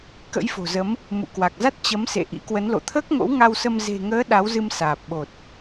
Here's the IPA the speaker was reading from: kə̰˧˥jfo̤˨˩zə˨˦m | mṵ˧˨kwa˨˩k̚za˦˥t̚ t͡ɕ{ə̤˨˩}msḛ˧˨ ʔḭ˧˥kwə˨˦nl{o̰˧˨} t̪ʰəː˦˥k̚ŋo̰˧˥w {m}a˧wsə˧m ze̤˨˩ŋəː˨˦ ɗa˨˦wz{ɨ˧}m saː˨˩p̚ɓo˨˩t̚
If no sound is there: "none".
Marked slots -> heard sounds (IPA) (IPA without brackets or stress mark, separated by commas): ə˨˦, o̰˧˨, ŋ, ɨ˧